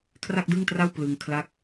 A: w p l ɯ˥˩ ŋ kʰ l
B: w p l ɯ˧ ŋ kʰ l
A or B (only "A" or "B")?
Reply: B